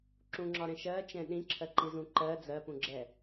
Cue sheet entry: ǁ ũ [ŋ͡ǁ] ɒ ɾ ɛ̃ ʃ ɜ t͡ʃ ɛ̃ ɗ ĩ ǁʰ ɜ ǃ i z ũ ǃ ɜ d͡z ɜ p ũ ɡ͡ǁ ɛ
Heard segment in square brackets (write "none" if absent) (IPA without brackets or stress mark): ŋ͡ǁ